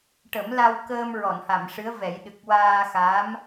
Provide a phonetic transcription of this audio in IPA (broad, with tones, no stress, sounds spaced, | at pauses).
ʈ ə˨˩˦ m l a˧ w k əː˧ m ɹ ɔ˨˩˨ n h a˨˩˨ m ʂ ɨ˧˥ ə̯ v ɛ˨˩˦ j ɗ ɨ˨˩ k̚ w aː˧ x a˧˥ m